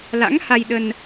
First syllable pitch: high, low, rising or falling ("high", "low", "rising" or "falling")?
rising